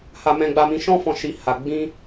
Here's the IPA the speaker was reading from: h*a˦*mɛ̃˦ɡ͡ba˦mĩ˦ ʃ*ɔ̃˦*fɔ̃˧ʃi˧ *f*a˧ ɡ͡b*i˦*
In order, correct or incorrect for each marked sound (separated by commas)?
correct, correct, incorrect, incorrect